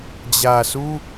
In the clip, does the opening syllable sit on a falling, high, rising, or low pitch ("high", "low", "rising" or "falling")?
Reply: low